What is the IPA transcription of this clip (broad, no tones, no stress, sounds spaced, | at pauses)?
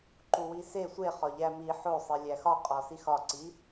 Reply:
ǃ u w i s e sʷ e χ ɒ ʎ æ m i ħ o sˤ i lʲ æ x ɒ qʼ ɒ s i x ɒ ǀ i